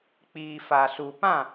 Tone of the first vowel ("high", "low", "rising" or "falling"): low